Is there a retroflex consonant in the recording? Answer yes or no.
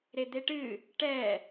yes